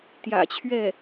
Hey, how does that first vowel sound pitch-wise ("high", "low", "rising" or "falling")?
low